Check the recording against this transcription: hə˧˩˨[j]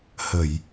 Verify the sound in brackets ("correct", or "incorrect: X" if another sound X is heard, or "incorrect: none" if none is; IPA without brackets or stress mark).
correct